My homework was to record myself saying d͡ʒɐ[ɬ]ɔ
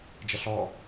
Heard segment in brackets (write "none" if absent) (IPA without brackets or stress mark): ɬ